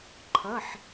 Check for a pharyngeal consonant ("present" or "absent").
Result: present